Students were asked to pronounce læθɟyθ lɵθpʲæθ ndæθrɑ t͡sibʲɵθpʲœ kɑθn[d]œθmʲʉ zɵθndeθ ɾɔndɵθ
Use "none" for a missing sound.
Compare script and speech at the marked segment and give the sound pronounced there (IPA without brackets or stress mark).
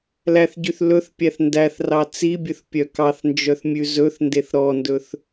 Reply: d͡ʒ